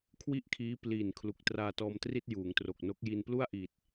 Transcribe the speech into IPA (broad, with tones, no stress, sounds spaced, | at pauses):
kʰ w i˥˩ ʔ kʰ iː˦˥ p l iː˨˩ n kʰ l u˨˩ k̚ t r aː˧ t ɔː˧ m t r i˥˩ t̚ j uː˩˦ ŋ t r o˨˩ k̚ n o˦˥ k̚ j i˧ n p l u˥˩ a̯ ʔ iː˨˩ t̚